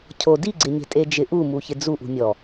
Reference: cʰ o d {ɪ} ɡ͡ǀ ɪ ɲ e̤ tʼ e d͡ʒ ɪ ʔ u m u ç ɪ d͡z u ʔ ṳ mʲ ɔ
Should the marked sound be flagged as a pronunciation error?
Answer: yes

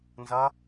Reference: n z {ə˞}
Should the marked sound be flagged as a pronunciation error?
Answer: yes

